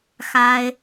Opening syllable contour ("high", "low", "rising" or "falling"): high